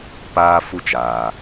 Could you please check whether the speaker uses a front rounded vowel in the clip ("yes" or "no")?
no